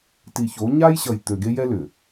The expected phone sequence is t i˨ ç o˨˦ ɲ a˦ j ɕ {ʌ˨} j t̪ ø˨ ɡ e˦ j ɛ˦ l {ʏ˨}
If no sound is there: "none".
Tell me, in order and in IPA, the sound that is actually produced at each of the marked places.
ʌ˨, ʏ˨

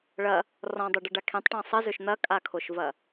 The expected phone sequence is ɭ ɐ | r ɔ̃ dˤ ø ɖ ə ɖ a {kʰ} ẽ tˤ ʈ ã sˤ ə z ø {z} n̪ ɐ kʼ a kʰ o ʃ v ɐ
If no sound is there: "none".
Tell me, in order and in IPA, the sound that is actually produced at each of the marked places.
kʰ, ʃ

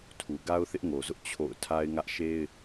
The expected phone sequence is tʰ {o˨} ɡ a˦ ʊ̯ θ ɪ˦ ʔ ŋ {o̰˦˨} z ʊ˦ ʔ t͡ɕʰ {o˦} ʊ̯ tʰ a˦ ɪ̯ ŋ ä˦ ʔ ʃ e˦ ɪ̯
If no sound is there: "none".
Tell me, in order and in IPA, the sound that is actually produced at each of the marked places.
u˨, o˨, o̰˦˨

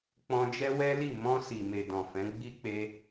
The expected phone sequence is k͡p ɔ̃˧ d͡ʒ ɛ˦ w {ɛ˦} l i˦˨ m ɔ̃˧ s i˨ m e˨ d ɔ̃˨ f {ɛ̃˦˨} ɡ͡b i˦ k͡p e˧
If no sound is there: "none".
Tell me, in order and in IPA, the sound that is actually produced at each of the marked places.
ɛ˦, ɛ̃˨˦

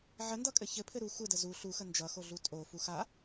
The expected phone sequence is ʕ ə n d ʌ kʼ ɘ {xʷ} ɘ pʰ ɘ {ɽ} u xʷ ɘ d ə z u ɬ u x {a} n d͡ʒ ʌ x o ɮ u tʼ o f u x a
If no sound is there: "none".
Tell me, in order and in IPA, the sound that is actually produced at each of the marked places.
ç, ɾ, ə

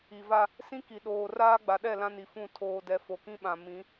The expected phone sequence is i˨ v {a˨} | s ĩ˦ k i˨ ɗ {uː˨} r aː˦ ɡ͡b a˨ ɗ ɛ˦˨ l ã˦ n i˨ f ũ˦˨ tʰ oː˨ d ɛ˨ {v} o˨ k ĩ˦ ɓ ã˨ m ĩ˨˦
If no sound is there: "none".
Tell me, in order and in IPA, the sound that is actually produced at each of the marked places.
a˦, oː˨, f

